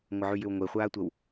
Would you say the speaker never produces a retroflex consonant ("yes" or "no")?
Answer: yes